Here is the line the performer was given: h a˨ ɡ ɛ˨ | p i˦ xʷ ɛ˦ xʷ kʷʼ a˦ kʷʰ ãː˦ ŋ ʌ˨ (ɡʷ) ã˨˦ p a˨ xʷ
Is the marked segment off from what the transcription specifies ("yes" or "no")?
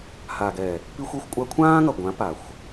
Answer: no